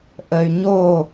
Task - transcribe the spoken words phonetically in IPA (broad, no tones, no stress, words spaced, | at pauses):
ʔəy̯ ɲo